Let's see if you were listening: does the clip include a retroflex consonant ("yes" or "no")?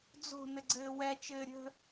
no